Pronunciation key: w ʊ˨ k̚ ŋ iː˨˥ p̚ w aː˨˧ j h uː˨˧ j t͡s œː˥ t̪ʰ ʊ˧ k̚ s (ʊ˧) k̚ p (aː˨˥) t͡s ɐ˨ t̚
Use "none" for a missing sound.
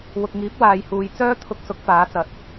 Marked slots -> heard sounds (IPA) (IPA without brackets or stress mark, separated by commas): ʊ˨˥, aː˨˥